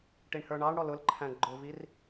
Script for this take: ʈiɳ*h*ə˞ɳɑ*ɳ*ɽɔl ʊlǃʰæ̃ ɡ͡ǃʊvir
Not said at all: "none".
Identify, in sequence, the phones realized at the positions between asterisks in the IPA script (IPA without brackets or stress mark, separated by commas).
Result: h, ɳ